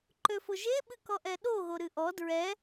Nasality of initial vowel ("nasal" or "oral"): oral